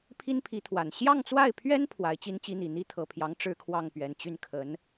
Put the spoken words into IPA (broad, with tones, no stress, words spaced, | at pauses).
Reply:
pʰi˥npʰi˧˥t̪ʰwa˨˩n ɕjɑ˥˧ŋt͡swa˥˩ɪ̯pʰɥɛ˥n pʰwa˧˥ɪ̯t͡ɕi˥nt͡ɕi˥n̪i˨˩ n̪i˥t̪ʰɤ˨˩pʰjɑ˧˥ŋ ʈ͡ʂɻ̩˥kʰwɑ˥˩ŋpɥɛ˨˩n t͡ɕy˥˩nkʰə˧˥n